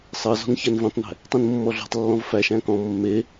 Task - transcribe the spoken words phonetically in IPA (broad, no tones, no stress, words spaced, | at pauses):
sˤɤzɔ̤n çænvĩtˤnæ̤ | tˤĩnmːɔɮɔ̤tˤlːɔ̃v fæʃæ̃ kɔ̃ mːe